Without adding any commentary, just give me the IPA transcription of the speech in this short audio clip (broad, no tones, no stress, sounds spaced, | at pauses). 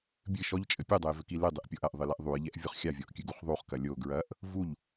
bʲ ɨ ʃ ɔ ʎ t͡ʃʼ ɘ pʲ u dˤ ɐ j v ɘ k i l ɨ dˤ ɨ ʔ pʲ ɔ ʔ ɐ ʔ ðˤ ɨ l ɛ ʔ ðˤ u j ʎ ɛ ʔ vʲ o χ xʲ a vʲ ɔ ʔ kʲ ɨ ɡ u χ ðˤ u χ k ɐ lʲ o ɡ ɹ ɐ ʔ | v u ʎ